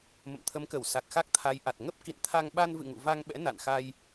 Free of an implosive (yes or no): no